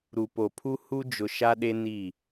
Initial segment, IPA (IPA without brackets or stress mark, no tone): ɾ